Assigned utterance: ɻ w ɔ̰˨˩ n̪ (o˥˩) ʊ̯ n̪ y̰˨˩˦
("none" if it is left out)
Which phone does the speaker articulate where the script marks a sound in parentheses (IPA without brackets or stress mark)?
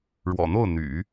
o˥˩